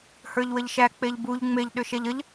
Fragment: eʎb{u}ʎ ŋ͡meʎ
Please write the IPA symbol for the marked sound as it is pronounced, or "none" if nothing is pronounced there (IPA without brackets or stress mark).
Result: u